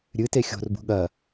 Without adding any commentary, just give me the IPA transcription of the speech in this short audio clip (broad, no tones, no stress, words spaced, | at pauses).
ɾʲɨte xʲo̤rbṳ ɠɐ